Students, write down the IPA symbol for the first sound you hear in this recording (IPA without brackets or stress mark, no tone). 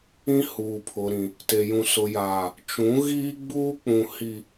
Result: ĩ